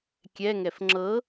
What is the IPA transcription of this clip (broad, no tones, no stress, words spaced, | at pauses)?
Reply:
kʲɛŋɛf ŋ͡ǁɤ